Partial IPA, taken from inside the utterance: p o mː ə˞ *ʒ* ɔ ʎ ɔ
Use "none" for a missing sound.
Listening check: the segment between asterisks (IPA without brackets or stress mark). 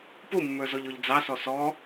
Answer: z